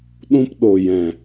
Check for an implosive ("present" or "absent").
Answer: present